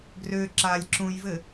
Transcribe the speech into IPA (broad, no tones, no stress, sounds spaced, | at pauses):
ɡ r ø ǁ a lʲ ǁ ũ j v ɘ